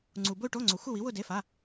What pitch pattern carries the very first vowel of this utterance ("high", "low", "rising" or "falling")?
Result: low